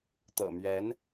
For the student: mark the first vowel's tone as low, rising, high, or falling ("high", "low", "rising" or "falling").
low